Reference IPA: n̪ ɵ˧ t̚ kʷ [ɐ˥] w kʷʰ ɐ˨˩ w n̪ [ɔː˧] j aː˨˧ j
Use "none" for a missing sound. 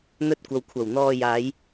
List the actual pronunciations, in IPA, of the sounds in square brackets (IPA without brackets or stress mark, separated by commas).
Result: ɐ˨, ɔː˧